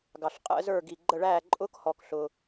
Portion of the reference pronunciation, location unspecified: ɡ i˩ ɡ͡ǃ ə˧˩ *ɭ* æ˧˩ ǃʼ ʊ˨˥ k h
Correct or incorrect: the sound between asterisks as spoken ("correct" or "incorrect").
correct